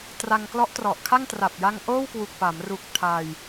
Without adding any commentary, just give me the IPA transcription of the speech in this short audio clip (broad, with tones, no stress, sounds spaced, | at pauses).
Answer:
t r a˧ ŋ k l ɔ˦˥ ʔ t r ɔ˨˩ ʔ kʰ a˥˩ ŋ t r a˨˩ p̚ j a˧ ŋ ʔ oː˥˩ w k w u˨˩ k̚ p a˩˦ m r u˨˩ k̚ tʰ a˧ j